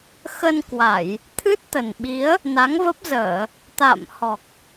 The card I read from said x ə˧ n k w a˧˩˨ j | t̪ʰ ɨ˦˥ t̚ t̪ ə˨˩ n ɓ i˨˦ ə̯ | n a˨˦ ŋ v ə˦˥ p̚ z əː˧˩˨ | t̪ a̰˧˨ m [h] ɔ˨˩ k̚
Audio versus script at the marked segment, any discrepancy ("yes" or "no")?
no